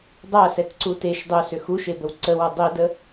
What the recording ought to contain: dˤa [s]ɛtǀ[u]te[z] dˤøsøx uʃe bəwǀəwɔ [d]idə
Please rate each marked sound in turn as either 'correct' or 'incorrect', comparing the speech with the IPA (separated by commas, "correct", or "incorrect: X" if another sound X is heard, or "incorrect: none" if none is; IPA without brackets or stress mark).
correct, correct, incorrect: ʃ, incorrect: dˤ